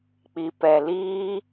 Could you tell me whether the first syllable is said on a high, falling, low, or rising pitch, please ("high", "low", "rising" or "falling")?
low